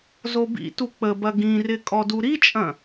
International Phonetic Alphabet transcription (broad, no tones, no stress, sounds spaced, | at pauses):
z o b ḭ t u k͡p ə b ɐ ɡ ĩ r ɪ kʼ ɔ d u ɾ i t͡ʃʼ ɐ̃